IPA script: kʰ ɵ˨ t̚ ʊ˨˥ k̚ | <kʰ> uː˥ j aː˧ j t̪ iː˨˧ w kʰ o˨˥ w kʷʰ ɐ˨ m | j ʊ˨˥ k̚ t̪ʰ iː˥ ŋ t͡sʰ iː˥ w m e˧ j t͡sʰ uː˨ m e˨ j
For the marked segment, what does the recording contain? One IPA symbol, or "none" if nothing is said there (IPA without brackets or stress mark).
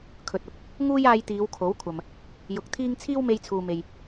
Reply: ŋ